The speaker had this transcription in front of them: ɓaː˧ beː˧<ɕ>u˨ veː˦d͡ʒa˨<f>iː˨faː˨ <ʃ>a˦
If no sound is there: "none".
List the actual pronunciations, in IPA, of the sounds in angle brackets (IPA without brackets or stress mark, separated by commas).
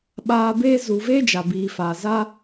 z, b, z